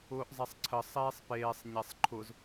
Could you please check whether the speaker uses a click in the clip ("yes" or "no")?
yes